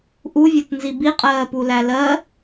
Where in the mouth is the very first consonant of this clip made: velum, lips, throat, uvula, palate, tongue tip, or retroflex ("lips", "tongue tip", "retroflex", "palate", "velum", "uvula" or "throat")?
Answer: throat